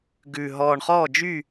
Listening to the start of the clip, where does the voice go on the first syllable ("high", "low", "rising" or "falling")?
low